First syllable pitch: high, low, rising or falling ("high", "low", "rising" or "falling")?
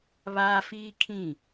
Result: high